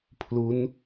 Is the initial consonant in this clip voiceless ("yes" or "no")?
yes